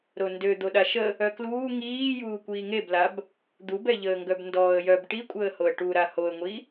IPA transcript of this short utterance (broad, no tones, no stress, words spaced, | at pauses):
ɾondø d̪oɗaʃə | œkluː ŋiː juːkʷiːŋeblab | d̪ubɛʎəːŋɡœb ndɔːə̯jœb ʈikʷʼəːhoə̯ ʈuɾa hoə̯ŋʷi